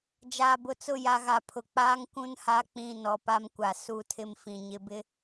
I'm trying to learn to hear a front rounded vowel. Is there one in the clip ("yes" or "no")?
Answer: no